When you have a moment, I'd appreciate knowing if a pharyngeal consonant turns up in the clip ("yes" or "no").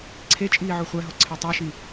yes